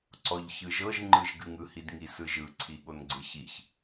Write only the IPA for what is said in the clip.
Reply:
ǀɔʎçɯʒɤʒ ŋ͡ǃɯʒɡɨŋɯ hidŋisɯʒɯ ǀʰiɠonɡ͡ǀɨçiç

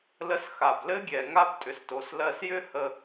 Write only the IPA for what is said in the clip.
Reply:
lə˧sxa˩blɘ˥ɡʲɛ˩ ŋa˥btʼʏ˩sto˩s lɜ˧sjʏ˥hə˧

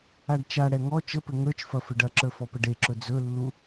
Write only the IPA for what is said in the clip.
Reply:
aɖt͡ʃaɽɛ ŋɔ t͡ʃəpɘ ŋə˞t͡ʃfɐ fɘɖɐǁə˞ fɔpəɖeǁɵ d͡zɵlːu

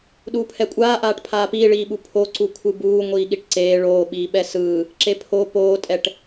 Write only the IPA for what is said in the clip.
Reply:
ɗuːpʰɛkʷʼaːʔaːʈ pʰaːpiːɭiːɓu pʰoǀu kʷʰɯbuː ŋʷiːɠiʈǀeː ɭoːɓiːɓɛ sɯː | ǁepʰo poːtʼɛʈ

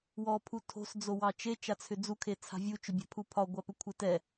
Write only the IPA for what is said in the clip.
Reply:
wɔ pʰutʰo̤s d͡zowɑt͡ʃe t͡ʃat͡sʰʏd͡zu kʰet͡sʰa̤vʲu t͡ʃʏbʲa̤pʰupʰɒ ɡʷapʏkʷʰetɛ

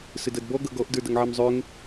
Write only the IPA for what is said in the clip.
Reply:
sədʌdbɔ ɡʌɡɔʔ də˞dʌŋʕɛmzˤøŋ

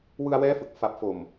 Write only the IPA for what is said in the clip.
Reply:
wɯ˧a̯wɛː˦˥fɯ˨˩k̚ fa˨˩p̚fo˨˩m

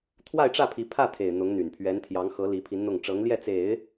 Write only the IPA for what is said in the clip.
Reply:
t̪ʰwa˥˧ɪ̯ʈ͡ʂä˥˩pʰi˧˥ pʰä˥˩t̪ʰe˨˩ɪ̯ n̪ʊ˧˥ŋ n̪y˨˩npʰɥɛ˧˥nt̪ʰjɑ˧˥ŋxɤ˧˥ li˧˥pʰi˧˥nn̪ʊ˥˩ŋ ʈ͡ʂɤ˧˥ŋljɛ˥˩t͡se˨˩˦ɪ̯

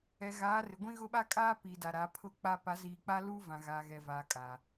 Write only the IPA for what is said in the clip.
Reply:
ɛ˨ɣaː˨˦rɪ˨ɡʷĩ˦ ɣʊ˦ɓa˦kʼaː˦ piː˨da˨ɾa˨˦ pʰʊ˦k͡pa˦ pa˨˦ziː˨k͡pa˦luː˦ vã˨ɣaː˨ɣɛ˨vaː˨ kʼaː˨

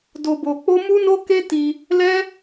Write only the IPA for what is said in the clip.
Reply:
do˧bo˧k͡po˦ mu˦no˦ ke˦ti˧ | lɛ˦

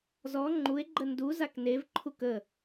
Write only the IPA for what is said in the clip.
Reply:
zɔ ŋ͡ǃue̯ɡ͡ǃə ndu zaknevǃʰuk ə

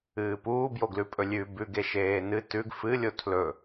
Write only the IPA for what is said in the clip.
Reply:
ɨːpuːbjoɡlʉ pʼɵlʲʉ bʉɡe ʃeːnɨ tʉɡ fɨlʲo tʰlɵ

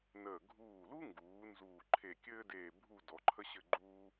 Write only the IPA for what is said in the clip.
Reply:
nəː˧˩ ɡʱuː˧˩lu˥ŋɡuː˩˧ nzuː˧˩ǃʰe˧˩kʲɘː˥deː˧˩ bʱu˥˧ dɔ˩˧ǃʰə˥ ɕɘ˥˧ɡ͡ǃuː˥

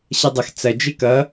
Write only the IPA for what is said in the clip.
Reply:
ɕɐdˤʌx t͡sɐ d͡ʒekʌ

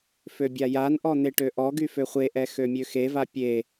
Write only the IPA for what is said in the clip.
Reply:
føbʲajanʔɔ n̪eʈøʔɔɡy føχʷeʔɛ xømʲøxeva pʲe

